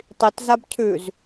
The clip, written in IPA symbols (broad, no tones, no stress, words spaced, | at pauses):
tˤitzab cʰʉz